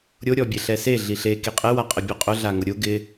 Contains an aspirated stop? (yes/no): no